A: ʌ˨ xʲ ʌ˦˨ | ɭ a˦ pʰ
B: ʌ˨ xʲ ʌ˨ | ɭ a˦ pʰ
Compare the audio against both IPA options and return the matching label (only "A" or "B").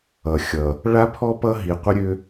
B